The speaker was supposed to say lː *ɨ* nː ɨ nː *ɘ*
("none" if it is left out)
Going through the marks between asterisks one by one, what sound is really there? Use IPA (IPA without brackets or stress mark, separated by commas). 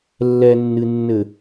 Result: ɛ, ɘ